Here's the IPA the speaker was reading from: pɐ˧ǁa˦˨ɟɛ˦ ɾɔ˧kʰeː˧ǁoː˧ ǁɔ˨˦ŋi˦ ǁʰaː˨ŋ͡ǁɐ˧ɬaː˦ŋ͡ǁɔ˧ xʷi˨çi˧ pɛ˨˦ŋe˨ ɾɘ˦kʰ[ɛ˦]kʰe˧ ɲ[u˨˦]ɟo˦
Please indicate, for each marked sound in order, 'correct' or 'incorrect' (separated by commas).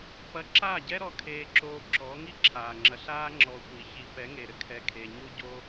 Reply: incorrect, incorrect